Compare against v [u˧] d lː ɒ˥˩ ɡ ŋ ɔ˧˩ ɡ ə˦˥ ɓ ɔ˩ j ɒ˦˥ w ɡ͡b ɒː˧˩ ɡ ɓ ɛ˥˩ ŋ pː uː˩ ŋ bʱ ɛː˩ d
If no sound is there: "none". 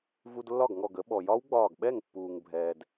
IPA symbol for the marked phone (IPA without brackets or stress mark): u˧